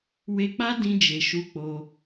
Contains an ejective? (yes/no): no